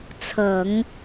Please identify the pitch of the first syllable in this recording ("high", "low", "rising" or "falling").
low